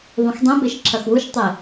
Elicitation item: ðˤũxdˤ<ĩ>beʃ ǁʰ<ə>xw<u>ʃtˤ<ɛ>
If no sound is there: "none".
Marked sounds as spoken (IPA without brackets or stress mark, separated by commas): ẽ, ɐ, u, e